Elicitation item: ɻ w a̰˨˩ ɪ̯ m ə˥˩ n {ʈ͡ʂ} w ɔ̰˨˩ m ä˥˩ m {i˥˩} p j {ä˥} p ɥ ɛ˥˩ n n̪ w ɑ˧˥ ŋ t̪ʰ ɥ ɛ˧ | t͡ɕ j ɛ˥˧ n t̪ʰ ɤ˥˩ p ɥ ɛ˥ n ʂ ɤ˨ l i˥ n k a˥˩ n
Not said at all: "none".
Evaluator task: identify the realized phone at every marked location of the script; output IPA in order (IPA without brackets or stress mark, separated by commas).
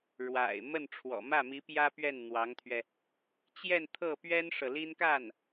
ʈ͡ʂʰ, i˧˥, ä˥